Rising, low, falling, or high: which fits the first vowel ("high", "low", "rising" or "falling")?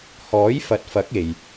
rising